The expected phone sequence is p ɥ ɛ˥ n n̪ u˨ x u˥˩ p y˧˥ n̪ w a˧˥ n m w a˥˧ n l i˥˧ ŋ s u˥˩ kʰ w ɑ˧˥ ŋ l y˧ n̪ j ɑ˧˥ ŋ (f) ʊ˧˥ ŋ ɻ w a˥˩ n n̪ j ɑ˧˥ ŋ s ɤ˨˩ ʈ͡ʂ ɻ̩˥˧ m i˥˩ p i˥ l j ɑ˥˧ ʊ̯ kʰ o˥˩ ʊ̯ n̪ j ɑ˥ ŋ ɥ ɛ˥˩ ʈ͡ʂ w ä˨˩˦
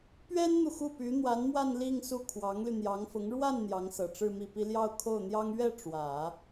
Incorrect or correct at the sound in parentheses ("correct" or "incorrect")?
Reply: correct